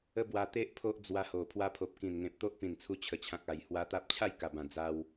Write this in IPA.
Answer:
ə˦ b w a˧ t̪ e˦ ʔ pʰ o˦ ʔ d͡z w a˧ h o˨˩ pʰ w a˧ pʰ o˨ p̚ k ĩ˨˩ n ŋ ẽ˨ p̚ t̪ o˦ ʔ p ĩ˨˩ n t͡sʰ u˧ t͡ɕʰ ə˨˩ t͡ɕʰ ã˨ k̚ a˨˩ j h w a˧ t̪ a˦ p̚ t͡ɕʰ a˥˧ j k a˨˩ b ã˨˩ d͡z a˧ w

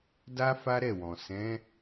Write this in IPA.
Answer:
d a˦ f a˦ ɾ ɛ˦˨ w ɔ̃˨ s ɛ̃˨˦

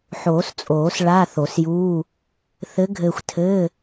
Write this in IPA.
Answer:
ħ oː˨˩˦ s t͡sʼ oː˨˩˦ s ɭ a˧˥˧ θ o˨˩˦ s j uː˧˥˧ | θ ɘ˧˥ ɡʱ ɘː˧ xʷ tʰ ɘː˧˥˧

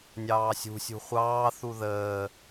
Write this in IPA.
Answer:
nʲ ɑː sʲ ṳ sʲ ṳ χʷ ɑː θ u ð əː

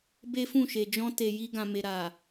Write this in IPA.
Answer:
b e˦ f ũ˦˨ ʃ e˨ d͡ʒ ɔ̃˧ t e˨ j i˧ ɡ ã˨ m e˨ ɾ a˨

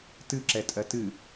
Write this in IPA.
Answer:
t ɨ ǁ ɛ tʼ ɜ t ɨ

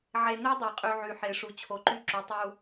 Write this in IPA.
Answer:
ʕ e˨ n ø˦ dˤ æ˨ qʼ y˨ ʕ y˨ ħ e˨ ʂ u˨ t͡ɕʰ o˨ ǃ y˦ ǁ y˨˦ tˤ u˦

